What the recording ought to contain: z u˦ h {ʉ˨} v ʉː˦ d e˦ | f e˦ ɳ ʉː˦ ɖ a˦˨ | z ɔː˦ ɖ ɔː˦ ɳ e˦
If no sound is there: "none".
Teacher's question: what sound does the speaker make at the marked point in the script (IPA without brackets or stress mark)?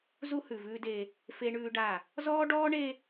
ʉ˨